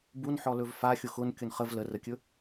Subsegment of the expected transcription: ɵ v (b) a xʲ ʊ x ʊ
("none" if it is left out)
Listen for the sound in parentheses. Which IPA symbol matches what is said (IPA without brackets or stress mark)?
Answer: f